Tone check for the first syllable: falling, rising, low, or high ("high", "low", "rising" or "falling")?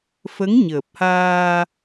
rising